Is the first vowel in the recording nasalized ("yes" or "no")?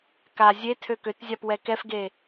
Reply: no